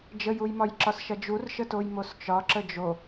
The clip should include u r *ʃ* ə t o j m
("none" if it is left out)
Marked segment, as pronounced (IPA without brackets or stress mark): ʃ